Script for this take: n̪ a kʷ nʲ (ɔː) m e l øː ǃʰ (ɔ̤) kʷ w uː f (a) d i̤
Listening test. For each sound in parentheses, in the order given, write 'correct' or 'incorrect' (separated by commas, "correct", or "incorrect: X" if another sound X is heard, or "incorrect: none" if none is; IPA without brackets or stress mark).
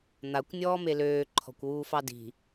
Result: correct, correct, incorrect: ɑ